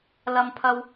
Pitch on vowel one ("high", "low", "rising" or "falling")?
low